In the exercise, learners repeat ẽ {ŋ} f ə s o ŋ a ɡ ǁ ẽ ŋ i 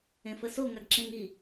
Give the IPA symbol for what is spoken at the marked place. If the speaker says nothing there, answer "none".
none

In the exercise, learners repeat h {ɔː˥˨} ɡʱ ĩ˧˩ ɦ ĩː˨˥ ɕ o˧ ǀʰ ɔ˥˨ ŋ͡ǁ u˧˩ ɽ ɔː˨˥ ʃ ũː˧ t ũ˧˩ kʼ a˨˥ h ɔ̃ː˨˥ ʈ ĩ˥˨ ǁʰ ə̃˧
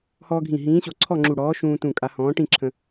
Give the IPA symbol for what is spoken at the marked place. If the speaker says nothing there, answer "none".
ɔː˧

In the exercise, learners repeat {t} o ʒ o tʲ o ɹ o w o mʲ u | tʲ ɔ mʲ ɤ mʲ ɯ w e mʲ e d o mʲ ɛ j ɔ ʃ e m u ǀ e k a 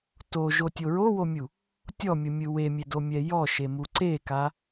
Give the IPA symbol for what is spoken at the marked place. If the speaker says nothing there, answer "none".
t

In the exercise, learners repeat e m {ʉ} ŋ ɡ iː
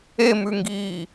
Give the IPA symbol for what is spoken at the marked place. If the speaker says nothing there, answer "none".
ʉ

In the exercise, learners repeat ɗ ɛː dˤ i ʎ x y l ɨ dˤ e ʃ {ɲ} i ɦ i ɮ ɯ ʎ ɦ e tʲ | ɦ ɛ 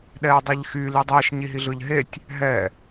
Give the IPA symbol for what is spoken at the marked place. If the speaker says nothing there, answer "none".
ɲ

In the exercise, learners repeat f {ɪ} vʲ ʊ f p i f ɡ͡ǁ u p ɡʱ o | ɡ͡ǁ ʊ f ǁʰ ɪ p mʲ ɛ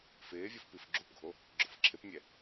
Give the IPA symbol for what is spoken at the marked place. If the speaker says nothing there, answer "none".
ɪː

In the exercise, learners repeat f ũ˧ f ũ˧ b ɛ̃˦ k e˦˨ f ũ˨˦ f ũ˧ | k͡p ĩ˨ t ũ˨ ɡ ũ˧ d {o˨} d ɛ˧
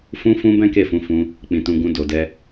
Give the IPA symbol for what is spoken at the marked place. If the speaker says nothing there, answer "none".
o˨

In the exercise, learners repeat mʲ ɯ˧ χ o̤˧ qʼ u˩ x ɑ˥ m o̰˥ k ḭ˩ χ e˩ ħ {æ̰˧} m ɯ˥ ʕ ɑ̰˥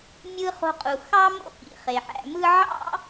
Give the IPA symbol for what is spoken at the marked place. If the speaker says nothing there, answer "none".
æ̰˧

